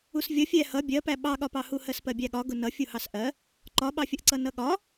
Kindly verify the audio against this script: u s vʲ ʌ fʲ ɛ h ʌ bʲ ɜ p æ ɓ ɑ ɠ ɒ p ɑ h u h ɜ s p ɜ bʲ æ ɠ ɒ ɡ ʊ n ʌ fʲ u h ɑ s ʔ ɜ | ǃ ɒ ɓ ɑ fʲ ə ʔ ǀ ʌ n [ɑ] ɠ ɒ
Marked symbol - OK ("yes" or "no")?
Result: no